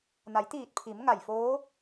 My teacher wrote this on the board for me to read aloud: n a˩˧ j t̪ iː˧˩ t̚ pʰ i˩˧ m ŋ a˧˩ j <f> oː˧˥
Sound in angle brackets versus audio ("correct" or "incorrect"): correct